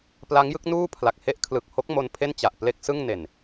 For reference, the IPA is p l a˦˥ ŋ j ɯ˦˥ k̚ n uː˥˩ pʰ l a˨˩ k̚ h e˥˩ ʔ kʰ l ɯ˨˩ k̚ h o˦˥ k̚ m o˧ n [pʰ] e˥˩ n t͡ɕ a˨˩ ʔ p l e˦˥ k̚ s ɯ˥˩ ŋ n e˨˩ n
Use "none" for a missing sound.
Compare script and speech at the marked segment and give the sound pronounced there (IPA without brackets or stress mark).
pʰ